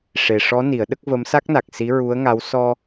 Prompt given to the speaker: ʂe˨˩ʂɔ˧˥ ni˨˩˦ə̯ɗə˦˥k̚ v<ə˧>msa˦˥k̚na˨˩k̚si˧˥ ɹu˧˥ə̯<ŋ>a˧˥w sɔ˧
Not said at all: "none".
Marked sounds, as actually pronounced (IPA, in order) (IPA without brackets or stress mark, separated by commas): ə˧˥, ŋ